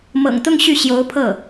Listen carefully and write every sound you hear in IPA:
mɤ̰˨˩ŋt̪ʊ˥˧ŋ ɕy˥˩ɕjo˧˥ʊ̯pʰɤ˥˩

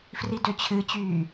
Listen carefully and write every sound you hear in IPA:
fridøt͡ɕʰɨt͡ɕyː

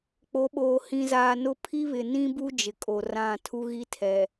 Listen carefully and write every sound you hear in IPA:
k͡po˨˦ɓoː˨ hĩ˨zaː˨nʊ˦ pʰi˦βɪ˨nĩ˦bu˦ d͡ʒɪ˨kʼo˨rã˦˨ tʰu˦ɣi˦tʰɛ˨

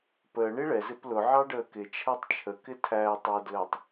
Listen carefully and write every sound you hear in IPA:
pəː ɳiɭɛ zɪplʊ ʕɑɖəːkɪ t͡ʃʰætˤt͡ʃʰə kɪtʰæːtˤwədləːtˤ

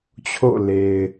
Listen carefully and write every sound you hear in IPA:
t͡ɕʰo̰˦˨le˨ɪ̯

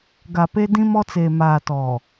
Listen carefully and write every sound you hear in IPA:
ɡa˨pe˦ dĩ˦mɔ˦t͡seː˨ maː˨tɔ˨

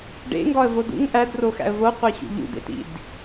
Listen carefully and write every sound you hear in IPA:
ɖḛŋɡɒə̯vo dṵŋ ʔædroxæ̰ə̯ voqʷeɕṵ ʎṵdḛtḭd

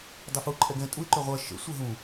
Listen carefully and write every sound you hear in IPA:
dˤʏfu ǃʼɛɡɛ̃ tʼuɪ̯ ǃʏʁʷɜ ʃə̰ sʷɜɦũ

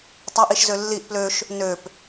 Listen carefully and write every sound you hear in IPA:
tˤaʔiʃzø lːiʔ pløʃ | nøp

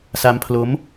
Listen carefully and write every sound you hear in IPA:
sa˦˥mpʰlo˦˥m

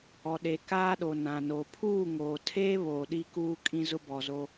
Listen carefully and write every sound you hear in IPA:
ɔ˨ɗe˨ kaː˦ɗo˨ nã˨no˨ pʰuː˦˨ŋoː˨tʰeː˦ βoː˨ɗi˦kuː˦ kʼĩ˦zʊ˦bɔ˨zo˦

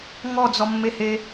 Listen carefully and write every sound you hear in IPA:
ŋɔd͡zɔmːehe

